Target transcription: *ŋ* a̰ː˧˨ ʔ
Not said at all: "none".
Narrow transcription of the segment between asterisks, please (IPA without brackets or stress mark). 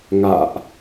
ŋ